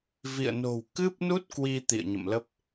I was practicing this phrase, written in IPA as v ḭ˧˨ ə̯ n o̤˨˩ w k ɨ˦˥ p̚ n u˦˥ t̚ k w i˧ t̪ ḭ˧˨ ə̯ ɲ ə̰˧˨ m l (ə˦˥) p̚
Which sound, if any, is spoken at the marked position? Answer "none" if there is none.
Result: ə˦˥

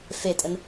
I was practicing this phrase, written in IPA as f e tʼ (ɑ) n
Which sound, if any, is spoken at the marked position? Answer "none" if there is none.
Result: ə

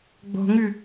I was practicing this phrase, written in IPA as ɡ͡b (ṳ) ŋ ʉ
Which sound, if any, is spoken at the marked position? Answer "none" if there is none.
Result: o̤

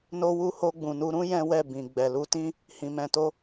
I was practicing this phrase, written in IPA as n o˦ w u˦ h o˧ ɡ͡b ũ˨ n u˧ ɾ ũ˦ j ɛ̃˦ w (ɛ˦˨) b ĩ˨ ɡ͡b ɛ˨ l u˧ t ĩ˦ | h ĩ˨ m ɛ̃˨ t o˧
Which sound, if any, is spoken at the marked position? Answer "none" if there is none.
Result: ɛ˦˨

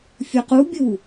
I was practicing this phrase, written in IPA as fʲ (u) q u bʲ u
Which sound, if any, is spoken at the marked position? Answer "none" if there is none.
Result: u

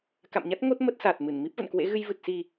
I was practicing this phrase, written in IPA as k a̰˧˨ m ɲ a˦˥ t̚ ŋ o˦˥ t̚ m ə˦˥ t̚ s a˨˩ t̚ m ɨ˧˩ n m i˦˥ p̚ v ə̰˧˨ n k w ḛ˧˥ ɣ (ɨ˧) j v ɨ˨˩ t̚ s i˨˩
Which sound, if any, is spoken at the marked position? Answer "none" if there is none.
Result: ɨ˧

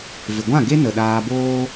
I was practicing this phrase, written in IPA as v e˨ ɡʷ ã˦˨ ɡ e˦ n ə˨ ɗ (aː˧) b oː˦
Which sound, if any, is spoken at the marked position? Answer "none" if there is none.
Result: aː˧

